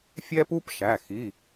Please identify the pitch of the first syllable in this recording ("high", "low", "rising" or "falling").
high